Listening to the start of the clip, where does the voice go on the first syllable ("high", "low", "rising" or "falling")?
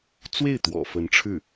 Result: falling